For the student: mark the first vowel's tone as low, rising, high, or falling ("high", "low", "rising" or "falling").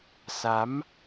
rising